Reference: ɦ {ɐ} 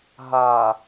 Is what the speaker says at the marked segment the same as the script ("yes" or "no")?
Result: no